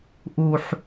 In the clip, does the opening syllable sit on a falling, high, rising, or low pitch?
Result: high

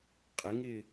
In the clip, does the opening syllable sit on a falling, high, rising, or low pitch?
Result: rising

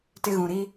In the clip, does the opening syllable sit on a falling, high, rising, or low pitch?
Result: high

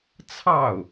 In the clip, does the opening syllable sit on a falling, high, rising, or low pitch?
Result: falling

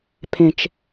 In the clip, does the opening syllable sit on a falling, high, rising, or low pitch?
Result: low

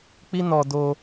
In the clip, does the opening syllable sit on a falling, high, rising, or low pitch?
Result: high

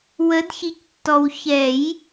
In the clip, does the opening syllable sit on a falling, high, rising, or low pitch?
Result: rising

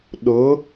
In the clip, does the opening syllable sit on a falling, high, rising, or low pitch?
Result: rising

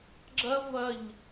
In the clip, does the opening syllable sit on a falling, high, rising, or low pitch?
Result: high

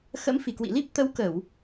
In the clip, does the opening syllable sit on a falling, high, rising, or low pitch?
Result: rising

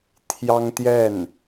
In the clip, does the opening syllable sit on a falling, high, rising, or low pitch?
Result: high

